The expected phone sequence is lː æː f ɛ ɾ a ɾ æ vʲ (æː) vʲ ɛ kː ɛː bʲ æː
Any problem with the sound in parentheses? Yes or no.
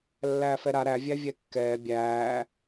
yes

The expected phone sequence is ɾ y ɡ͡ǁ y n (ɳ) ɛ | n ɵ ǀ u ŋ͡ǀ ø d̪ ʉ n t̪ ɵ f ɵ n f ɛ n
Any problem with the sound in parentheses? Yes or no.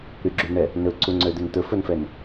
no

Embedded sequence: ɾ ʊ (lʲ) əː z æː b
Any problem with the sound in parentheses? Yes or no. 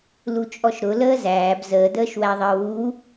yes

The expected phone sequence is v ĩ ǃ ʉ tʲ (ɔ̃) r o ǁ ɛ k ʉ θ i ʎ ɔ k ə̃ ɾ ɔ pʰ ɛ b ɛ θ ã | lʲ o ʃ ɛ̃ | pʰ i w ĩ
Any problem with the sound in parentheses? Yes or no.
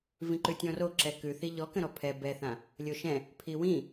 no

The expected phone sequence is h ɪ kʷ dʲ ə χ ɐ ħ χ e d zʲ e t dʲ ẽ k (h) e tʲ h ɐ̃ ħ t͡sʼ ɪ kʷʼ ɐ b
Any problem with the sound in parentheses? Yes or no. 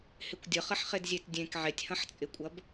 yes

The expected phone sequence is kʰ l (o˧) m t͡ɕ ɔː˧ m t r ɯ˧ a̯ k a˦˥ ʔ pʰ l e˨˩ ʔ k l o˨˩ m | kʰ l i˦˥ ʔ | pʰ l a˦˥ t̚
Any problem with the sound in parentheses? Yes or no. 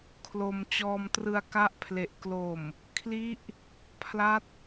no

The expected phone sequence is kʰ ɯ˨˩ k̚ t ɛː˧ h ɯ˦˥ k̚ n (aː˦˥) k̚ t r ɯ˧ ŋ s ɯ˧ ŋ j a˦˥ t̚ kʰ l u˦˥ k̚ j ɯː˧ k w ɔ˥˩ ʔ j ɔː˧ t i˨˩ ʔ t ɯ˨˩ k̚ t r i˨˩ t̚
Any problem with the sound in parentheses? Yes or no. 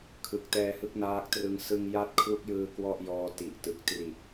no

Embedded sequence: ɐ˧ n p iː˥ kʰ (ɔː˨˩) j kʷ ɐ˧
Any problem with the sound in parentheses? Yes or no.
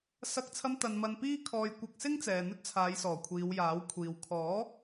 yes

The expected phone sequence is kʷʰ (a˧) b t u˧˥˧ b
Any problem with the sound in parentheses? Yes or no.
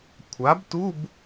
yes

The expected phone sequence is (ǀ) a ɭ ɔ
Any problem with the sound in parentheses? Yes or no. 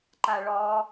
yes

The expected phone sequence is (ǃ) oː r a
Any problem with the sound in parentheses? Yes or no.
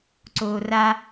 yes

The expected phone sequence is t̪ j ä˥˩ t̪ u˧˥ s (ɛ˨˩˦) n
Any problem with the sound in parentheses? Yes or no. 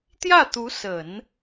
yes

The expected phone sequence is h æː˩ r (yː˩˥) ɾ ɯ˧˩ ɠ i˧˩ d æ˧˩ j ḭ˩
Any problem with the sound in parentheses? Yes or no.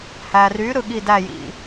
no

